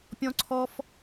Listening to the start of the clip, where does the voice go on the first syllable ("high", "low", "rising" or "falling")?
high